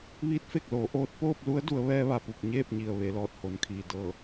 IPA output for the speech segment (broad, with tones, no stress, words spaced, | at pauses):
ʋiː˧˥t̚fe˧˩k̚loː˩˧ ʔoː˧t̚ poː˥˨p̚lu˧˥ə̯ du˩˧ə̯ ʋɛː˧ʋa˩pu˧˩k̚ ɲeː˥˨p̚ɲi˩ə̯ ʋe˩˧lɔː˧˩t̚ho˩˧nkʰiː˩ dɤː˧˩